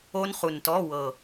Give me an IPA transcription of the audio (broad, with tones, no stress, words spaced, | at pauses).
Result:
o˦˥nχu˨˩ntɔ˧˥˧wɤ˨˩